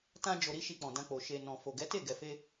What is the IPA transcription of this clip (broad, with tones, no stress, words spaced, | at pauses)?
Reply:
tã˧d͡ʒo˨ɾi˧ ʃi˧k͡pɔ̃˨dã˧k͡po˨ ʃe˨ nɔ̃˨fo˨ɡɛ˨˦te˦˨ ɡɛ˨fe˧